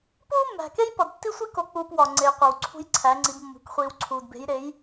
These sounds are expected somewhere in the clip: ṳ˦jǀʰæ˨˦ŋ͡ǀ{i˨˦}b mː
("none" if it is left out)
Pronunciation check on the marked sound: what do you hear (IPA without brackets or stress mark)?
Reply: i˨˦